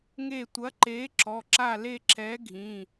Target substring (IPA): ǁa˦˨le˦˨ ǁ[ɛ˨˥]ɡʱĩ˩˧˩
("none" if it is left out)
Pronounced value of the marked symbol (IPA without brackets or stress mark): ɛ˨˥